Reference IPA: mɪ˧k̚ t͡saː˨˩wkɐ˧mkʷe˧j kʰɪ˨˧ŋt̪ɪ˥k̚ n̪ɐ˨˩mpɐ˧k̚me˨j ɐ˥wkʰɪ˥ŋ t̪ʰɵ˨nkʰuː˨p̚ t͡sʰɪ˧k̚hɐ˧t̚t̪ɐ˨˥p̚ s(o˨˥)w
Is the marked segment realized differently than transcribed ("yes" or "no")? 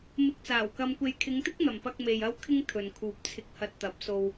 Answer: yes